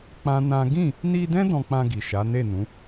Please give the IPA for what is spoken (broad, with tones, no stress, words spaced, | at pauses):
k͡pã˦nã˦ ɡĩ˦˨ | ni˧dɛ̃˦ dɔ̃˧k͡pã˧ɡi˨ʃa˨˦ ne˦˨nũ˨˦